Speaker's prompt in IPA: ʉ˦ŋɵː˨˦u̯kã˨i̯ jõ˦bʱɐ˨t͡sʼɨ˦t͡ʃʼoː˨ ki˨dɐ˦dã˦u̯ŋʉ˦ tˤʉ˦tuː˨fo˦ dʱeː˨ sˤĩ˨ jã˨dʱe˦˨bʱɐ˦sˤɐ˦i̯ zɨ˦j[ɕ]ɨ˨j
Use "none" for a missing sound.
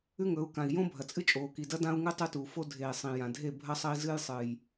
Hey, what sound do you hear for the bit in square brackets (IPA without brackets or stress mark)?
sˤ